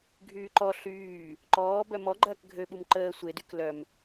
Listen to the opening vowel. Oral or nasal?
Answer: oral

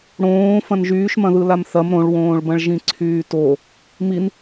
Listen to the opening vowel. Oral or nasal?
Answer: nasal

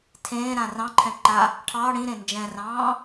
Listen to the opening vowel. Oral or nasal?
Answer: nasal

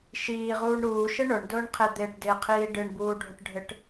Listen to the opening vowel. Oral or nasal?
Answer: oral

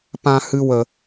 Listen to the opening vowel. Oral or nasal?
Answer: nasal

